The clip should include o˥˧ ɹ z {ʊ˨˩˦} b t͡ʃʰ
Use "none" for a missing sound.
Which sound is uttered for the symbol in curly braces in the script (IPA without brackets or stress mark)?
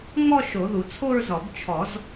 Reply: ɔ˨˩˦